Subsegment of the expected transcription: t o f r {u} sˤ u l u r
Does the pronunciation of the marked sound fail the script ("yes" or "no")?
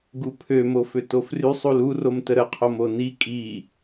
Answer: yes